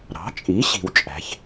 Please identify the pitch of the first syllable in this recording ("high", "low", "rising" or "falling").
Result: rising